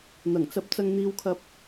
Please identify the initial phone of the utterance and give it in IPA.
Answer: n̪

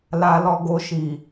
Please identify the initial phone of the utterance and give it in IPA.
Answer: l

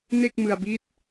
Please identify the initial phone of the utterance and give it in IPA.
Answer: n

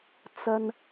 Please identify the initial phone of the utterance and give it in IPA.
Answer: t͡s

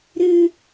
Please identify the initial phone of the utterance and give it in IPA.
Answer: ɾ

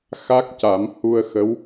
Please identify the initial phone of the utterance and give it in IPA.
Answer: x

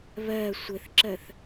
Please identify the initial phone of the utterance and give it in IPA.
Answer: β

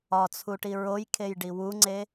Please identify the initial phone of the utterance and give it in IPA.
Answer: ɒ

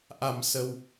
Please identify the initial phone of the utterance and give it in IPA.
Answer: ʔ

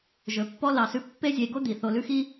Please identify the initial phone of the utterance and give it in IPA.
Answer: ʒ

